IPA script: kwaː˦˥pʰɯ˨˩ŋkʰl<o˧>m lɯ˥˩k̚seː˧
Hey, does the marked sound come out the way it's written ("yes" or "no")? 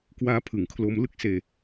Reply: yes